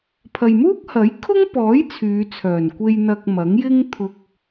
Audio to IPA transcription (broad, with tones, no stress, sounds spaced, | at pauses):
pʰ ɐ˨ j m uː˥ k̚ h ɐ˨˥ j kʰ ʊ˥ ŋ p ɔː˨˥ j t͡sʰ yː˨˧ t͡sʰ œː˨˩ n kʷ e˧ j n̪ ɐ˧ k̚ m ɐ˨˥ ŋ j ɪ˥ ŋ t̪ʰ ʊ˧ k̚